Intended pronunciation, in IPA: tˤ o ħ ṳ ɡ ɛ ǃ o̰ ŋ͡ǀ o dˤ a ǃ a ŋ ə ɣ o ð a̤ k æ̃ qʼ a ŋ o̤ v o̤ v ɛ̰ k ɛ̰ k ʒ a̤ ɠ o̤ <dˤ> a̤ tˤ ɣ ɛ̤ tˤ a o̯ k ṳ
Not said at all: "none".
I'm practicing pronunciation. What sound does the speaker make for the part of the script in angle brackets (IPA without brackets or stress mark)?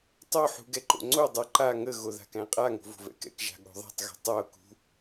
ðˤ